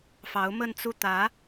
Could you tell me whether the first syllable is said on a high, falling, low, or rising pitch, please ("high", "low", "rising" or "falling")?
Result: rising